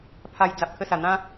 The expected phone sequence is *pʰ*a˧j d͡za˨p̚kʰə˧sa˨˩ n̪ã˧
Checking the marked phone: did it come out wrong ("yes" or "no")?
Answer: no